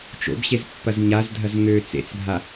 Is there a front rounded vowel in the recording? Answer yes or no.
yes